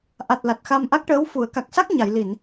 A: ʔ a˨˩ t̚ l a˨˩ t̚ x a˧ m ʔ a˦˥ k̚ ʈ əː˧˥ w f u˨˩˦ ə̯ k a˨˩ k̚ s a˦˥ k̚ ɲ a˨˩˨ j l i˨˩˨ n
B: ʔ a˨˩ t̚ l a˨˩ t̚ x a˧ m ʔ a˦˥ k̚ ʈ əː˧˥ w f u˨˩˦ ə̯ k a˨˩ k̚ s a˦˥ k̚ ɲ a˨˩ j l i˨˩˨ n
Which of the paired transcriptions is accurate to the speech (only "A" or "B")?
A